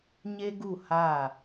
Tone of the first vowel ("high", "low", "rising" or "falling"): high